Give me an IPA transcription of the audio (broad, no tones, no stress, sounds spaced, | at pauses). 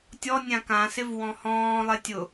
tʲ ɔ nʲ ã k ã s ɪ v w ɔ̃ h ɔ̃ː lˠ e tʲ ʊ